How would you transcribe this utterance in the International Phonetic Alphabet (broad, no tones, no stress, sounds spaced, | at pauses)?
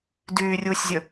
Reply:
d yː rʲ uː sʲ zʲ ə